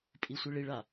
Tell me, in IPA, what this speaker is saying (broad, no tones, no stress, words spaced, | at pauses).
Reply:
pʼisʷiɭiɭa